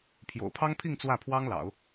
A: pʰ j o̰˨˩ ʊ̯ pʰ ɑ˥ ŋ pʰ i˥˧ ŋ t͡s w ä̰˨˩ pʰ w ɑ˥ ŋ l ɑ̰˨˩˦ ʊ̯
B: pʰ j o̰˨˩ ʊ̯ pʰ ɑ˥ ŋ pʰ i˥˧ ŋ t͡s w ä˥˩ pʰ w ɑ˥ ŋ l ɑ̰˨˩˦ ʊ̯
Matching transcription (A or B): B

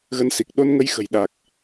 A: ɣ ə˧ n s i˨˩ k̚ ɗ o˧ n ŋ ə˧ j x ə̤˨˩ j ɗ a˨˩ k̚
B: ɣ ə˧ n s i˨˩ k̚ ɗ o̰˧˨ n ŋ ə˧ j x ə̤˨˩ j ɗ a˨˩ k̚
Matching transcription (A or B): A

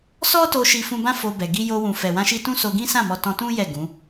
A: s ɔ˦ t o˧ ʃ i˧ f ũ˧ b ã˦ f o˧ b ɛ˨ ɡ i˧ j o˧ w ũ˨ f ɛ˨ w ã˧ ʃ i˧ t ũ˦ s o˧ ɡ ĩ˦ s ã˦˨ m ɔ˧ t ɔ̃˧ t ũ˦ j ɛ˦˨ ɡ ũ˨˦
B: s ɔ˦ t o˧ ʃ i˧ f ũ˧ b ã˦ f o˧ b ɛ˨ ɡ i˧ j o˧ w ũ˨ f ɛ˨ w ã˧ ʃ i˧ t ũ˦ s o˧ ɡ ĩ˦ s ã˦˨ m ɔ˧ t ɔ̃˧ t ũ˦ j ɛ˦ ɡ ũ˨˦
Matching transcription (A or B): A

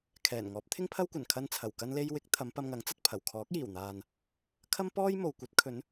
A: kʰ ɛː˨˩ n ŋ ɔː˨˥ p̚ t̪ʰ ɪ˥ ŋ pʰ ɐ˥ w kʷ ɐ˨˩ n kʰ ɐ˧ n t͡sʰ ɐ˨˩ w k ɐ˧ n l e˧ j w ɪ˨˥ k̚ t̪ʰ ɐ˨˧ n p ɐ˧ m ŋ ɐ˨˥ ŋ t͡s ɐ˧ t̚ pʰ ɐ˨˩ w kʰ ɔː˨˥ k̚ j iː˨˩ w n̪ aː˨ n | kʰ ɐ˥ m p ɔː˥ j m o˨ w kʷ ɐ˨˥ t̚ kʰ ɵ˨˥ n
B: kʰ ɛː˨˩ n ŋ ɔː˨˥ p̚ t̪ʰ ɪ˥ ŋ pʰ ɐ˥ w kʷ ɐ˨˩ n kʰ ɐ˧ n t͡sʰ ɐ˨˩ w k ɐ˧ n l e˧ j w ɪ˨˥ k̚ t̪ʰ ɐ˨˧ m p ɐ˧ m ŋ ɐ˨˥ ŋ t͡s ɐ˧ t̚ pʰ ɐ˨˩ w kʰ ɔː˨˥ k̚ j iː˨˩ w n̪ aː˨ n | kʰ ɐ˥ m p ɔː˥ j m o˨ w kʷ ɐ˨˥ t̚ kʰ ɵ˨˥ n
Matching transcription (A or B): B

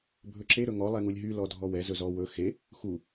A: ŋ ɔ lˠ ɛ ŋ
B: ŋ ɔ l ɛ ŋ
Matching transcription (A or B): A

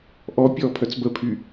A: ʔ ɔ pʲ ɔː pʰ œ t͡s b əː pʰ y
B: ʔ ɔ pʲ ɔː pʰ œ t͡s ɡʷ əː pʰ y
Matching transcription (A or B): A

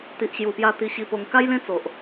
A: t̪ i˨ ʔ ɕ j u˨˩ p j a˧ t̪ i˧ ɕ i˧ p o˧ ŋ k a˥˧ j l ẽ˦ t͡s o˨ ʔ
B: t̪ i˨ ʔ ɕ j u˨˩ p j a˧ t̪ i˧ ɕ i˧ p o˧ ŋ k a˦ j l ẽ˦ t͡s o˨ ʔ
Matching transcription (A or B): B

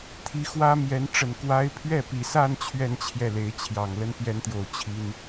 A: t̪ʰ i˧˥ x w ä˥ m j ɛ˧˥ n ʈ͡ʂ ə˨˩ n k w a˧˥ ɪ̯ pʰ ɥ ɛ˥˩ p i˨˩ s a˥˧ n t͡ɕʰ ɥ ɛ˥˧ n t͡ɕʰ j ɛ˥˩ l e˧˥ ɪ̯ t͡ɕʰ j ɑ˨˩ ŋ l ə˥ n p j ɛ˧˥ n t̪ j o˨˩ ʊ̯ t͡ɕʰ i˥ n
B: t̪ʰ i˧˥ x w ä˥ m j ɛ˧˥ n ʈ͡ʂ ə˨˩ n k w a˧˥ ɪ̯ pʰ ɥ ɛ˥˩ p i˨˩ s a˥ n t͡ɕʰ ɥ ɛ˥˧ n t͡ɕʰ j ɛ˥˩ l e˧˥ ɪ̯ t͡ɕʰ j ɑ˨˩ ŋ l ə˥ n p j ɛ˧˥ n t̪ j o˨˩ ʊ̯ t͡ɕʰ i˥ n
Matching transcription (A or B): A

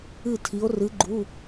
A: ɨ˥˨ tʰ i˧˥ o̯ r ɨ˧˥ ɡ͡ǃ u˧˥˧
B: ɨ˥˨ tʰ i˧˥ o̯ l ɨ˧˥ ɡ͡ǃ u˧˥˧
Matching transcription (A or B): A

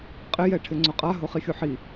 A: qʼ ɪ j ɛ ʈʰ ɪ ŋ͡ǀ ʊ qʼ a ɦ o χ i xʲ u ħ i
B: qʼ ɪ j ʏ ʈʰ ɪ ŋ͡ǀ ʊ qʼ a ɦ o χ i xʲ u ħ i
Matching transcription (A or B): A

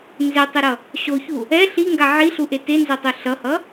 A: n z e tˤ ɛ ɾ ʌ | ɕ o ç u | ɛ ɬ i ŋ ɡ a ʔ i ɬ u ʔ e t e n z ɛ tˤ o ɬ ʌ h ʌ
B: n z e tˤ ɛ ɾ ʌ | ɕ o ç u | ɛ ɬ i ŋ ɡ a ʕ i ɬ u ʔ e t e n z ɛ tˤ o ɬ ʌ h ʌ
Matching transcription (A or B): B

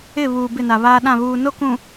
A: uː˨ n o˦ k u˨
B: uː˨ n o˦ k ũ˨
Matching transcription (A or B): B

